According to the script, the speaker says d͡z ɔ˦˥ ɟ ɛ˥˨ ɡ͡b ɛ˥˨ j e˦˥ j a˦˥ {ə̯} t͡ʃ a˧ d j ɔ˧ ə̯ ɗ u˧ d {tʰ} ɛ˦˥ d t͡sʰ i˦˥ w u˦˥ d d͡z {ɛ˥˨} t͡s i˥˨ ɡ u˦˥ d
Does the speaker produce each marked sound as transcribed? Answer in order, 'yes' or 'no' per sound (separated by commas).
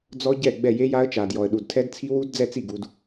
yes, yes, yes